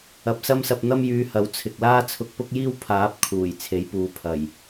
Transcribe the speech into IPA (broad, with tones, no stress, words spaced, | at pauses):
ɐ˨p̚sɐ˥msɐ˧p̚ n̪ɐ˥mjyː˧hɐ˨˥w t͡sʰɪ˨k̚laː˥ t͡sʰʊ˧k̚pʊ˥k̚jiː˥w pʰaː˨˥p̚ kʰuː˨˩j t͡sʰe˨˥jpuː˨˧pʰɐ˨˩j